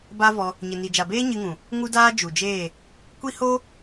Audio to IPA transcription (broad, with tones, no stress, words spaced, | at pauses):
ba˦ vɔ˧ | ɲə˨ni˨d͡ʒa˨beː˦ ɲɨ˧ŋũ˨ | ŋu˦daː˦ d͡ʒu˨d͡ʒeː˦˨ | kʷi˦ho˦